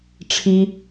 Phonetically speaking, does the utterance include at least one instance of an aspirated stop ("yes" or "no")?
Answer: yes